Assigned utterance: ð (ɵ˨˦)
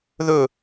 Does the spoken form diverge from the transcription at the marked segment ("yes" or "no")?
yes